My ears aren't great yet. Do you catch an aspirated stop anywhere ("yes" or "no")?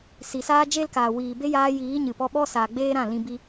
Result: no